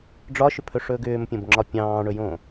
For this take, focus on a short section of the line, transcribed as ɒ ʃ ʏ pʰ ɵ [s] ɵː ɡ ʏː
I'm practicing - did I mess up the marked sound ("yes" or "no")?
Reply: yes